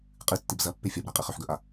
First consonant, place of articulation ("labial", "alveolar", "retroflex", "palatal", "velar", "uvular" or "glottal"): uvular